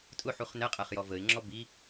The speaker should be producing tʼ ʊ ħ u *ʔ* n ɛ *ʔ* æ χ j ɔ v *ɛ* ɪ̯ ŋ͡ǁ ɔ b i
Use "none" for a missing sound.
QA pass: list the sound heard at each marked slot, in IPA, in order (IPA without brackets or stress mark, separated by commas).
χ, qʼ, ə